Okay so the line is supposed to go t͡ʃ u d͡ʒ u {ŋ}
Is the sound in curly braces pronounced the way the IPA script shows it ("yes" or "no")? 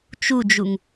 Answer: yes